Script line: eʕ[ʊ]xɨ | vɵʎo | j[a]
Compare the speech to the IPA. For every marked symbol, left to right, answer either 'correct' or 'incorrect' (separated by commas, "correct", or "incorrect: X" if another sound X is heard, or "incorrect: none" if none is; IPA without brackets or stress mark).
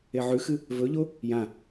incorrect: ʉ, incorrect: ã